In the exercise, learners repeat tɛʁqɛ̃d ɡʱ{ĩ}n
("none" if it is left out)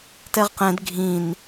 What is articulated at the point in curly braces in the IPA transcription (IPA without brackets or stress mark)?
ĩ